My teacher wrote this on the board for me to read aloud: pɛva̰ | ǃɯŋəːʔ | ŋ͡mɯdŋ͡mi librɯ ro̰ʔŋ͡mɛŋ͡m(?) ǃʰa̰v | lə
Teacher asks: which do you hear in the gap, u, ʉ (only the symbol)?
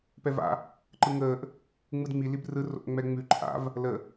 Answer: ʉ